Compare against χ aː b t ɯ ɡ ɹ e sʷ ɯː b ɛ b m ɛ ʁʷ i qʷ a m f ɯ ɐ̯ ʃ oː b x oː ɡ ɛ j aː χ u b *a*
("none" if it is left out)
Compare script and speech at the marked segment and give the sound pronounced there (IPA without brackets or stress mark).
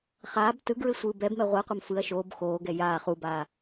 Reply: aː